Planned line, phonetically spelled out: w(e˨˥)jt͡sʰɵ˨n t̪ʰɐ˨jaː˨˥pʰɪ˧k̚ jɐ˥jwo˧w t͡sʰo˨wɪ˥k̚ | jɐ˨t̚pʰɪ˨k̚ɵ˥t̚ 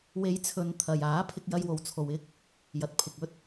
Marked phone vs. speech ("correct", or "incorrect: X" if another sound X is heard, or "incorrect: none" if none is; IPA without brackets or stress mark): incorrect: e˨˧